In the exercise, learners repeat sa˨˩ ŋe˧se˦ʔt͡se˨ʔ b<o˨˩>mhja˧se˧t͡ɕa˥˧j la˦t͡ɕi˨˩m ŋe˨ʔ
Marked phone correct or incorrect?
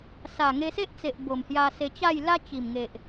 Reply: correct